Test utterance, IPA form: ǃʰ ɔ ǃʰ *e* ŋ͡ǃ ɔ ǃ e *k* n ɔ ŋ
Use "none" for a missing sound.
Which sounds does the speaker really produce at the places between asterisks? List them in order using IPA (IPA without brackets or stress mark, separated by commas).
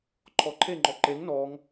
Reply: e, ŋ